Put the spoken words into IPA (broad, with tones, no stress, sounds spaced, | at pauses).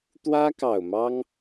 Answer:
t̪ w ä˥ k ɑ˨˩ ʊ̯ m ɑ˥ ŋ